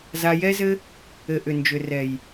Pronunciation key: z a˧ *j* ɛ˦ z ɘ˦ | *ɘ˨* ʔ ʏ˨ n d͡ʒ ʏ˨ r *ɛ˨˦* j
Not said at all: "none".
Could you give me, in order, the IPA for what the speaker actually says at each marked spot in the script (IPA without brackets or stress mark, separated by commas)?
j, ɘ˨, ɛ˨